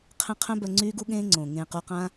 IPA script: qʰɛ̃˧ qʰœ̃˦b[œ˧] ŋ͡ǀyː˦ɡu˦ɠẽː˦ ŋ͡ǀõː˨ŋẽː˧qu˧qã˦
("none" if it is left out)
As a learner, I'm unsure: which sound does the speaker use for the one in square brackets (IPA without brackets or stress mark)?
œ˧